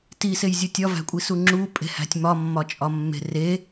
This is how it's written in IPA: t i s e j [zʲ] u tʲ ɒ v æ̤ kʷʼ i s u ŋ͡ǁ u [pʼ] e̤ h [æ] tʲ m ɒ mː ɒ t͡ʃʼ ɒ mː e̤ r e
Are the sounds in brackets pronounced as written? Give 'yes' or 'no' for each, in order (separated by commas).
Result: yes, yes, no